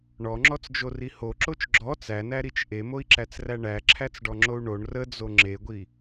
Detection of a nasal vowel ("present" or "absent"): absent